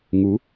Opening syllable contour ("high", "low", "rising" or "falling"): rising